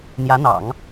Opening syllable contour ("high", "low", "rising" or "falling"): rising